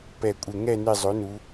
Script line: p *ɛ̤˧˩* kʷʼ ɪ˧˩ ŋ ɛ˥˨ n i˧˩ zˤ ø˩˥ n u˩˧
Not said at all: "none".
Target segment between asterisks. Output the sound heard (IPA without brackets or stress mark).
ɛ˧˩